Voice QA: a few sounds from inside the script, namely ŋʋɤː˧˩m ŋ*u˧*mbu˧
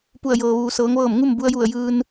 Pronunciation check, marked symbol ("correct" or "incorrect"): incorrect